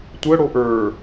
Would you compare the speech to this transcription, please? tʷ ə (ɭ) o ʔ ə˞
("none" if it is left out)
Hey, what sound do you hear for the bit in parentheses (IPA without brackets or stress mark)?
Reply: ɽ